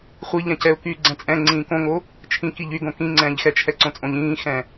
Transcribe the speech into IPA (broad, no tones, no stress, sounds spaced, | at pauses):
χʷ i ʎ ɛ̃ c ɛ ʊ̯ k yː ɡ͡ǀ ɛ̃ t͡sʼ ɛ̃ ŋ͡ǀ ĩː k õ ŋ o | t͡ʃʰ ĩ k i ʎ y ɡ õ k ĩ ŋ͡ǀ ɛ̃ː ʎ x ɛ t͡ʃʰ ɛ ǀ õ t͡sʼ õ ʎ ĩː x ɛ̃